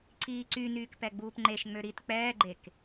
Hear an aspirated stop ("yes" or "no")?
no